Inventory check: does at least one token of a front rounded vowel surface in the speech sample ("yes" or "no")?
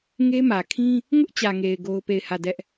no